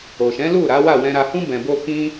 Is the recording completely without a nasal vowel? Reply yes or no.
no